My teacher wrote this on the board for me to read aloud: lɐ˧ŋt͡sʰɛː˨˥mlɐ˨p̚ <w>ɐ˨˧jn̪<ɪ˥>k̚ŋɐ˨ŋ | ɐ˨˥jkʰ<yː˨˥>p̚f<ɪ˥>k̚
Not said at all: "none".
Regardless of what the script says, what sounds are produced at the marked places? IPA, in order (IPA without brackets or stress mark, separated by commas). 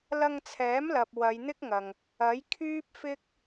w, ɪ˥, yː˥, ɪ˥